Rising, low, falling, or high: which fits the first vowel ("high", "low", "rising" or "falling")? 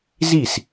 falling